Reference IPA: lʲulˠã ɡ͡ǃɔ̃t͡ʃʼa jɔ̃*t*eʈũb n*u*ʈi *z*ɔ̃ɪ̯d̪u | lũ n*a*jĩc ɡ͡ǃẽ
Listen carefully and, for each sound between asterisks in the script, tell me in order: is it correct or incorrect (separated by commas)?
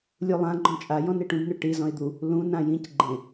incorrect, incorrect, correct, incorrect